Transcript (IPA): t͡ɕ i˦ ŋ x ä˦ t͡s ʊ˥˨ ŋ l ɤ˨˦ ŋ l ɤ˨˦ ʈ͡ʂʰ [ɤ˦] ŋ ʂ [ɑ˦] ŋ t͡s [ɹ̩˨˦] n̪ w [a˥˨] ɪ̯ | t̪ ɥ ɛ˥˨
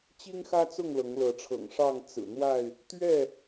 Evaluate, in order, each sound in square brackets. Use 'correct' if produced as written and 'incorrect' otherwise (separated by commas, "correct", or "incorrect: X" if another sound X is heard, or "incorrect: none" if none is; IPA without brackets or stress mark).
incorrect: ɤ̰˨˩, incorrect: ɑ˥˨, incorrect: ɹ̩˨˩, correct